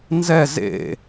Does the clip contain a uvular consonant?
no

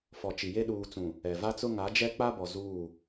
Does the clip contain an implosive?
yes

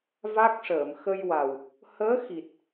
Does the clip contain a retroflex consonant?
yes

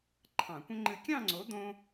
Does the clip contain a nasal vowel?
yes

